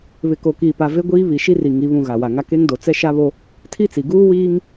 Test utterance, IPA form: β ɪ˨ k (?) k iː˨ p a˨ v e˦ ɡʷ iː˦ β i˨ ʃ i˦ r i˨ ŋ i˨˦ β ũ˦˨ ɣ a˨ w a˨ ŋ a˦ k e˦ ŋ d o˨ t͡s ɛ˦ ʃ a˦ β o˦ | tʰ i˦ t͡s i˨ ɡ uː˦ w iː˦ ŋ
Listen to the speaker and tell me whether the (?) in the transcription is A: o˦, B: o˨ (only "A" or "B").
B